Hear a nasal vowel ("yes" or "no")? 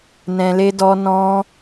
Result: yes